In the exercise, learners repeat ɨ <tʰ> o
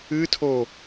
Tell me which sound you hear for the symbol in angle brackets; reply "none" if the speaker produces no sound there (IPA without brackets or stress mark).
tʰ